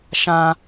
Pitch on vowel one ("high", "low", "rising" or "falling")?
high